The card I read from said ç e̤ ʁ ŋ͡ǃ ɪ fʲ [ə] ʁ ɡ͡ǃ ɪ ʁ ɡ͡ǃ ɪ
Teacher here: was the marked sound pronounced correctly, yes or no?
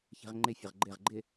yes